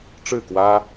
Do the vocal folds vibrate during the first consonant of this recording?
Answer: no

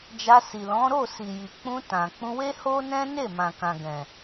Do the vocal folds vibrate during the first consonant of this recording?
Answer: yes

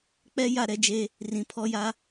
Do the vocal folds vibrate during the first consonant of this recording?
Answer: no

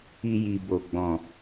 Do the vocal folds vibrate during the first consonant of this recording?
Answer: yes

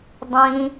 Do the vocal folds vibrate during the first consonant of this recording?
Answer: yes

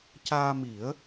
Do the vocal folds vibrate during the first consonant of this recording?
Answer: no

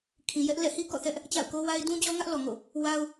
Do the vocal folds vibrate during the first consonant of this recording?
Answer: no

